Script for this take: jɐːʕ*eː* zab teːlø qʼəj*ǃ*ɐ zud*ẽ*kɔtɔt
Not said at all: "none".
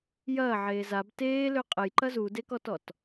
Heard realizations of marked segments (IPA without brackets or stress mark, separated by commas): eː, ǃ, e